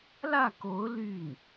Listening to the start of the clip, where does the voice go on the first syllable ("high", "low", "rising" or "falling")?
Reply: falling